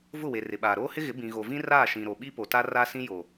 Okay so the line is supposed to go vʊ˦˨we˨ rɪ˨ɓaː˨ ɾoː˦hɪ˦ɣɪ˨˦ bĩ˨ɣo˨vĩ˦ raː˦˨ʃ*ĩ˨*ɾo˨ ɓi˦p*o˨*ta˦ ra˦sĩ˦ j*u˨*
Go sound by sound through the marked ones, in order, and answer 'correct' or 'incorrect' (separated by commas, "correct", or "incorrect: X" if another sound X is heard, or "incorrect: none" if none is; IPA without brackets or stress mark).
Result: correct, correct, incorrect: o˨